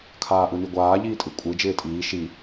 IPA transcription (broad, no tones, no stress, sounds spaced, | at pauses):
kʰ aː ʔ ɯ n i ɡʷ aː ʎ iː tʼ ɯ kʷʼ ɯ d͡ʒ ɪː tʼ iː ʃ i